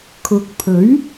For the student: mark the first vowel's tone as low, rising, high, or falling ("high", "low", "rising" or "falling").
low